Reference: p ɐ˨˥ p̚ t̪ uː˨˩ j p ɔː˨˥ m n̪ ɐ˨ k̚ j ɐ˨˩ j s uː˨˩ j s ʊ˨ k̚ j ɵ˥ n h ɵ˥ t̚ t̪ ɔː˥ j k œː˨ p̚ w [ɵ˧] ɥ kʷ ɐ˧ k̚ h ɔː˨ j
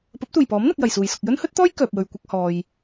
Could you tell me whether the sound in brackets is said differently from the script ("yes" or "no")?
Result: yes